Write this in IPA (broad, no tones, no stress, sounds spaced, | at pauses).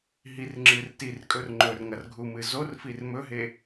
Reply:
ɦ i r ŋ͡ǁ ɨ r t i r kʼ ɵ r ŋ͡ǃ ɵ r ŋ ɐ r ɡʱ u m ɨ z o r f i r m ɵ ɦ e